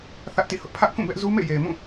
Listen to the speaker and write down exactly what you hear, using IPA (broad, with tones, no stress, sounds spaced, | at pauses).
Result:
θ ä˦ ʔ t ḭ˦˨ h ʊ˦ ʔ pʰ ä˦ ʔ k ũ˦˨ b ɛ˦ ʔ z u˦ m ḛ˦˨ j e˨ ɪ̯ m ũ˦˨